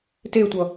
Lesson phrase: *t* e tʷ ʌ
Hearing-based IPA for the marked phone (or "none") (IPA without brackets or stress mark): t